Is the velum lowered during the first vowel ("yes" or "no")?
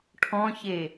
yes